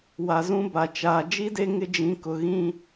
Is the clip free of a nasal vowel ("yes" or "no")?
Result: no